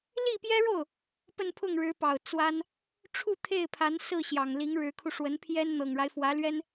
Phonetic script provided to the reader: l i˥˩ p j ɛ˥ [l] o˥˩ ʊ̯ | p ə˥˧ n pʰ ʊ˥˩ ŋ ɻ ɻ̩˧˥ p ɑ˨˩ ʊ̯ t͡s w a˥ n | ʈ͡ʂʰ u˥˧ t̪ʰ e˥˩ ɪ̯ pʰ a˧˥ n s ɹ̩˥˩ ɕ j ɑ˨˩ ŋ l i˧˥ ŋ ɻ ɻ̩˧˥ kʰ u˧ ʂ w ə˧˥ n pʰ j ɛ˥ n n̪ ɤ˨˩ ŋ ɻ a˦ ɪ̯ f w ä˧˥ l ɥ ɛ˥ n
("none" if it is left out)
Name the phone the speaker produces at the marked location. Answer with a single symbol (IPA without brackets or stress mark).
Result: ɻ